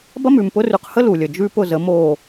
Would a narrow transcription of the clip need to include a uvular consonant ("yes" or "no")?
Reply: yes